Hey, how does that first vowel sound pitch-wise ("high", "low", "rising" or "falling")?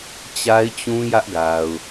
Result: high